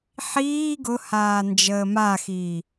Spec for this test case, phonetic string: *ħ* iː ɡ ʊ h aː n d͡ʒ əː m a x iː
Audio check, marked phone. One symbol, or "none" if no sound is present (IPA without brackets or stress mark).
ħ